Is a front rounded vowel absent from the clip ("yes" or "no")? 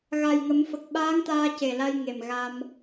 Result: yes